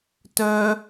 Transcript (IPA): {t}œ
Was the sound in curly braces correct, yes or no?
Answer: yes